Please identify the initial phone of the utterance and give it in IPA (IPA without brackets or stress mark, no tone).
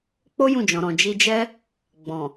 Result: k͡p